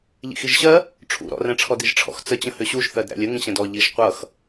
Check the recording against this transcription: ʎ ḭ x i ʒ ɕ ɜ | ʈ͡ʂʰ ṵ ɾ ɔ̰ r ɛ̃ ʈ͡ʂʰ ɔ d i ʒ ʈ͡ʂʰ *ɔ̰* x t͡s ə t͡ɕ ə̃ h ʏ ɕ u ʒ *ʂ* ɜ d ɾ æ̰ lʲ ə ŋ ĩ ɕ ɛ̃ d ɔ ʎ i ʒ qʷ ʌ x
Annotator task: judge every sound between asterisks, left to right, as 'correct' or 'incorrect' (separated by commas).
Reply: correct, incorrect